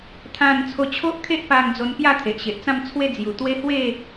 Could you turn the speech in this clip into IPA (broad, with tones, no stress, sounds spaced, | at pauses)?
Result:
t̪ʰ ã˥˧ n t͡sʰ o˧ t͡ɕʰ o˦ ʔ kʰ e˦ ʔ p a˧ ŋ d͡z o˧ n p j a˥˧ t̪ʰ e˨ ʔ ɕ e˨ ʔ t͡s ã˥˧ m t͡sʰ w e˥˧ d͡z j u˨˩ t̪ w e˦ h w e˥˧